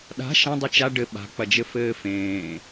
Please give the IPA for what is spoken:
ɗa̤ ʃɐ̃dˤɨ t͡ʃa ɖɘ ɓa̤k͡pɐd͡ʒɘ fɘːfẽː

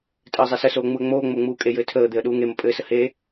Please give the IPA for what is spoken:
tʼɘːzˤesəsoː ŋ͡muə̯ŋ͡moːŋ͡mo ŋ͡muːkʼejɘː tʰəːd̪eə̯ ɗuːŋemə pʼɘːsə he

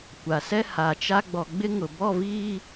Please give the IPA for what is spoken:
kʷa˨sɛ˦ ha˨t͡ʃa˦ ɡ͡bɔ˨ɡ͡bɪ˦ŋʊ˨ bɔ˦˨viː˦

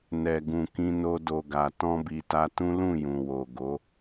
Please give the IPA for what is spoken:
nɛ˨ ɡũ˨kĩ˧no˧ do˨ɡa˨ tɔ̃˧bi˨ ta˧tũ˦lũ˦˨jũ˨ wo˨ɡo˨˦

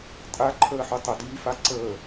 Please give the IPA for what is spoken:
tʼa ǃʰəːħytˤə dyːfaǀəː

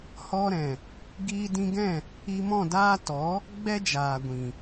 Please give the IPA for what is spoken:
hɔ˧ɾɛ̃˨ | ɡiː˧dĩ˧ɡɛ̃˦˨ | i˧mɔ̃˦˨daː˦ tɔ˨˦ | ɡ͡bɛ˦d͡ʒaː˨ɡʷĩ˨

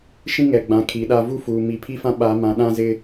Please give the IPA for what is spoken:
ʃĩ˦ŋɛ˨ɡ͡bã˨ kʰi˨˦ɗa˦ vu˦fuː˨ mi˨ pʰi˦fã˦ ɓa˨˦ mã˨ɗã˦zɪ˦

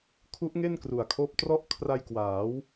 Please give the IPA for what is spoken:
kʰu˦˥ʔŋe˥˩nkru˨˩a̯kʰoː˦˥p̚ trɔ˦˥ʔkʰra˧j kwaː˩˦w

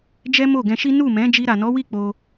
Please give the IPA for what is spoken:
d͡ʒɛ˦mo˦˨ɡɛ̃˧ʃi˦ nu˦˨mɛ̃˨˦ d͡ʒi˧ɾa˨nɔ˨˦wi˦˨ k͡po˧

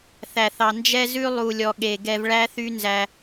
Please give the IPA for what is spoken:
θæ˨θɑ˨ nd͡ʒɛ˧zʉ˧ lˠu˨lʲɔ˨ɠe˨ ɡɛ˧vɭæ˦θy˦ nzæ˧

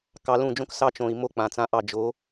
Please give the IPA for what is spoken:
kɑ˧lũ˦˨d͡ʒõ˦k sɑ˧t͡ʃõ˨i̯ mo˦k͡pã˨t͡sã˧ʔɑ˦˨ d͡ʒo˨˦

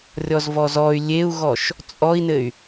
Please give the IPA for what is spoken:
rʲɔzvɔzɔy̯ lʲeu̯ɣɔʃ | t͡sʼɔi̯nɘy̯

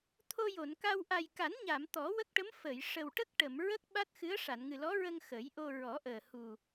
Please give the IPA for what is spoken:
t̪ʰo˧jo˨˩˨nka˧w ʔa˨˩jka˨˩˦nɲa˨˩˨m t̪ɔ˨˩˦wə˦˥k̚ʈə˧˥m fə˨˩˨j ʂə˨˩wʈə˦˥k̚ʈə˨˩˨m ɹə˦˥k̚ɓa˦˥t̚xɨ˧˥ə̯ ʂa˨˩˨nŋɨ˨˩lɔ˧˥ɹə˧ŋ xə˨˩˦jʔo˧ɹɔ˨˩˦ʔəː˨˩ hu˨˩

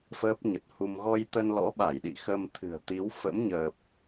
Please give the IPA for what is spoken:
fəː˦˥p̚ɲə˨˩t̚hu˧m ɣɔ˧jt̪ə˧n lɔ̰˧˥ɓa˧˩jɗḭ˧˨ xə˧mt̪ʰɨ̤˨˩ə̯t̪i˨˦w fə̰˧˥mɲəː˨˩p̚

